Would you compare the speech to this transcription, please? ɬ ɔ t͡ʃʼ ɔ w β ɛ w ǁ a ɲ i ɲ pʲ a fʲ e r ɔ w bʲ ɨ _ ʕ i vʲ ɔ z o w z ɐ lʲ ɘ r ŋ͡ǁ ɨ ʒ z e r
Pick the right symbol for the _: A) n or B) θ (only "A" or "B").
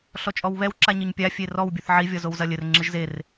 B